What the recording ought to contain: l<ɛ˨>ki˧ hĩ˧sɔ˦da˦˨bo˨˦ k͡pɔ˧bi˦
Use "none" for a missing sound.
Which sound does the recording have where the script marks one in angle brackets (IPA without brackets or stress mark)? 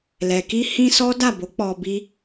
ɛ˨